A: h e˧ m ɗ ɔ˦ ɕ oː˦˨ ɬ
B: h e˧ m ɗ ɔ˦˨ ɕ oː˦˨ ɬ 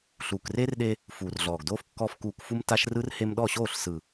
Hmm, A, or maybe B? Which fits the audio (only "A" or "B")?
B